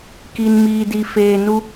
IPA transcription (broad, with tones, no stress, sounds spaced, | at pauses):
k i˨ n m iː˨ d i˨ f eː˨ n u˦